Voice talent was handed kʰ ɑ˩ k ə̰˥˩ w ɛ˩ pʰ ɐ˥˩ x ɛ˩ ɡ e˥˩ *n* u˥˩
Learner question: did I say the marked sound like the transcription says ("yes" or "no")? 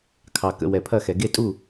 no